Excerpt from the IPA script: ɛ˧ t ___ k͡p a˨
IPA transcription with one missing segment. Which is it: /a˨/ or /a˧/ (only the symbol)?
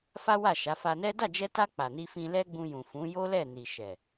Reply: a˧